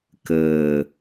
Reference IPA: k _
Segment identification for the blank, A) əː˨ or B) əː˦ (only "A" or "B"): A